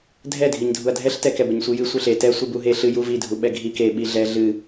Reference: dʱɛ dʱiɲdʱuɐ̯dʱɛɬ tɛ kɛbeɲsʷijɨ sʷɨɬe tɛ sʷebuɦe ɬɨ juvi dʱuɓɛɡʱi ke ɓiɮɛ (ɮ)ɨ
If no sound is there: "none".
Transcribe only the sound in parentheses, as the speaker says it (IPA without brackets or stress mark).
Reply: ɮ